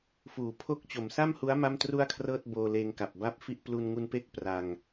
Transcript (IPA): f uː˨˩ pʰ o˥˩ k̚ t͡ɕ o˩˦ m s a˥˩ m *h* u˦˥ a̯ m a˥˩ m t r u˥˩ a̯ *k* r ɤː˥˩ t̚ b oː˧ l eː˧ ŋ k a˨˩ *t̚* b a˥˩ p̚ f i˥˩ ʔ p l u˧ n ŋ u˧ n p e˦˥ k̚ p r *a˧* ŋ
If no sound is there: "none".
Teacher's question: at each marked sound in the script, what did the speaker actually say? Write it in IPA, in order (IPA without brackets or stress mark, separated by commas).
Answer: h, kʰ, p̚, a˧